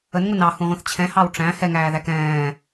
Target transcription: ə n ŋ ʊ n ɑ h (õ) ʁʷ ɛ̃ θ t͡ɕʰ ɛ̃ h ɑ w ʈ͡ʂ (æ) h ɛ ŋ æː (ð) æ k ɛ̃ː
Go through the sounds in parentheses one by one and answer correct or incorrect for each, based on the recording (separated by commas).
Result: incorrect, incorrect, correct